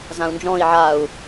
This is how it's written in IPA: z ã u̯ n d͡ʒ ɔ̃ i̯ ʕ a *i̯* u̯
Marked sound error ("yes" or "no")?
yes